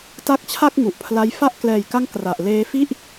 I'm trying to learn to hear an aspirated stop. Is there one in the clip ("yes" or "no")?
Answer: yes